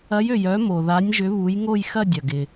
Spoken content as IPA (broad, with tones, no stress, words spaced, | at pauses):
ɐ˨˦jø˩j œ˨˦mo˩ða˨˦nʲʒʏ˨˦ βu˨˦jŋo˥˧jxɐ˥˧ dʲɐ˩ɡɪ˩